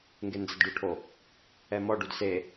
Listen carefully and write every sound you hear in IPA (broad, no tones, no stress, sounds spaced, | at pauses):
ŋ ɡ e n d͡z ɐ d ɖ u ʈʰ o | ɛ m ɔ ɖ u d s e